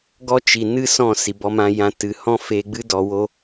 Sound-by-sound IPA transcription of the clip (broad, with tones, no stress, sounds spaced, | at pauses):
ɡ ɔ˦ t͡ʃ i˨ n ɨ˦ s ɔ̃˦˨ s i˨ b ɔ˧ m ã˧ j ã˧ t ɨ˨ h ɔ̃˦ f e˧ ɡ͡b ɨ˦ d ɔ˧ w o˦